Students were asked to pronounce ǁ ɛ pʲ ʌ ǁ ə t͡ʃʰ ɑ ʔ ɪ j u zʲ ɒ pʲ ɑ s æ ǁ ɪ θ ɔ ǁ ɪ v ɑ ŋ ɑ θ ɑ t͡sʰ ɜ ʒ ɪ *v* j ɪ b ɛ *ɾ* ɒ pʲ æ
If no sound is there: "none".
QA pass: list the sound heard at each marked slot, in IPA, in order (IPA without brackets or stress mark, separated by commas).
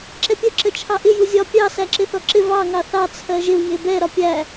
v, ɾ